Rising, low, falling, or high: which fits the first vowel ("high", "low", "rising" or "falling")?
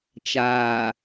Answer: low